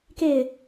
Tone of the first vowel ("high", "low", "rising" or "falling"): falling